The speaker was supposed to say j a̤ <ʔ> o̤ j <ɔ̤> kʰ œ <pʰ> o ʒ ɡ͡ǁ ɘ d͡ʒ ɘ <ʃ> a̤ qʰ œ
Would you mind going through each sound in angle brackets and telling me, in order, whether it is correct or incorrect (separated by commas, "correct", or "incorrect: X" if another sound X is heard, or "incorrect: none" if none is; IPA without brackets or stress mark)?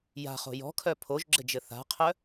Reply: incorrect: χ, correct, correct, incorrect: θ